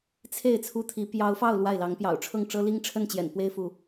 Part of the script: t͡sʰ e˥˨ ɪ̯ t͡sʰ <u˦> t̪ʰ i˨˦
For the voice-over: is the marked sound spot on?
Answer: yes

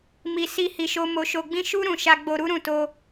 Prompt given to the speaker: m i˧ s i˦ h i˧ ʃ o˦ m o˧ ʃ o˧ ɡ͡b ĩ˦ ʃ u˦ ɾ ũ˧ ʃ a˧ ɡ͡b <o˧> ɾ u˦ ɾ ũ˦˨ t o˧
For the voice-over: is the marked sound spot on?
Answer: yes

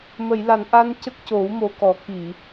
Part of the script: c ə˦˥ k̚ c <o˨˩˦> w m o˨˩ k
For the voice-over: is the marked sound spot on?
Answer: yes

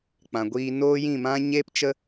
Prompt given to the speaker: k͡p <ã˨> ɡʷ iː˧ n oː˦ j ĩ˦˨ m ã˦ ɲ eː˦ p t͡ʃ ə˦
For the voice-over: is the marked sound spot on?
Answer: yes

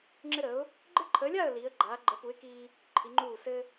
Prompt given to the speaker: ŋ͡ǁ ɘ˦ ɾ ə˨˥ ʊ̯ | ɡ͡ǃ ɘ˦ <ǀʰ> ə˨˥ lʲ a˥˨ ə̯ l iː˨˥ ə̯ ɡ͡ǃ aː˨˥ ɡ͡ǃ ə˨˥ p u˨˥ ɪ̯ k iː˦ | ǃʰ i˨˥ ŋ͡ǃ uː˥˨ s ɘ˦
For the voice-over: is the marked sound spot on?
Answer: no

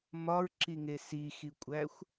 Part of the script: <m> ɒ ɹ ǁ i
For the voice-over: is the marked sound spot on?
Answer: yes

